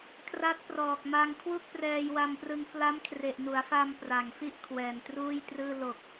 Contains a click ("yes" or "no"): no